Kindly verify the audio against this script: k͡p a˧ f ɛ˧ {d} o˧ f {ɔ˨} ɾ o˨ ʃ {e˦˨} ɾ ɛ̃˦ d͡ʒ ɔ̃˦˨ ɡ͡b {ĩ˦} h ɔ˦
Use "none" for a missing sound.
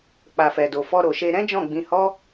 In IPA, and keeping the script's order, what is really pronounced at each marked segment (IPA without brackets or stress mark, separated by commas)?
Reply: d, ɔ˧, e˧, ĩ˧